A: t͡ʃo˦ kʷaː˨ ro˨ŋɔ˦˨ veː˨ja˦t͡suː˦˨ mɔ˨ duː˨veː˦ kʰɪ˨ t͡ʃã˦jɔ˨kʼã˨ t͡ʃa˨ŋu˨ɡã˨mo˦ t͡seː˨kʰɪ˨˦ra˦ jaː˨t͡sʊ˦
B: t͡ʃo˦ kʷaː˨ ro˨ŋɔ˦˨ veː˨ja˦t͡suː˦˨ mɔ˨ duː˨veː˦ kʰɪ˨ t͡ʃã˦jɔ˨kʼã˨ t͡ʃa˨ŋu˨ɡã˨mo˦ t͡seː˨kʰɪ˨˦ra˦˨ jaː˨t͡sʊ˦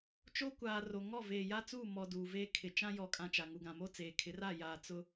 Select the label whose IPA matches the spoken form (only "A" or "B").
B